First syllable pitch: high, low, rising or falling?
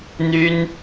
high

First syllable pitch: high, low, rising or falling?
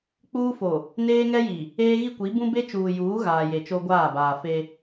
high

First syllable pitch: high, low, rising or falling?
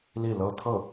falling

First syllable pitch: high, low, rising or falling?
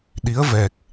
rising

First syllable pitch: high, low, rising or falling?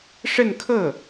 falling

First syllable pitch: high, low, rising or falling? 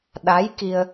rising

